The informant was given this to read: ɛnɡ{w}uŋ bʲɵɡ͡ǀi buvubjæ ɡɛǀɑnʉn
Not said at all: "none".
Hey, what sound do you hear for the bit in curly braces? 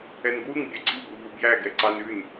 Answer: w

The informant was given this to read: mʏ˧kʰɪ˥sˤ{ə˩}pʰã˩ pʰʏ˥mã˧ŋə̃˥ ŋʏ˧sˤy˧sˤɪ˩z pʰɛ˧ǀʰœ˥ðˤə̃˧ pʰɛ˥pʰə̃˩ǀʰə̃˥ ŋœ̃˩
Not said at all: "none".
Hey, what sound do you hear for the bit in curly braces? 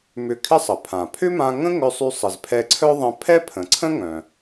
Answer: ə˩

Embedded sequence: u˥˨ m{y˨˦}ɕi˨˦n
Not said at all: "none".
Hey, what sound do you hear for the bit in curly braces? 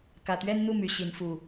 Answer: y˨˦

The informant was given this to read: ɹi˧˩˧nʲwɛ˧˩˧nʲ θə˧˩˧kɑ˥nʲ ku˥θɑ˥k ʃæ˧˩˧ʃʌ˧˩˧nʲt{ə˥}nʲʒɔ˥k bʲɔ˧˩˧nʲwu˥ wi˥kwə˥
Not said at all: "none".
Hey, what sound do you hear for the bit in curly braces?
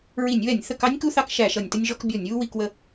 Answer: ə˥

